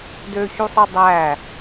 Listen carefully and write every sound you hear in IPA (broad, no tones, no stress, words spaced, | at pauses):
døçusˤɯ dˤæ